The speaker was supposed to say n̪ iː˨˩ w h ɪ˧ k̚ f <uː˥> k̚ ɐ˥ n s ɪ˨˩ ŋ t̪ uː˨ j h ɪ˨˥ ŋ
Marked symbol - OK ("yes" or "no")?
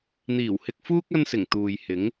yes